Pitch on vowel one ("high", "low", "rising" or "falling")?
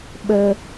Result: high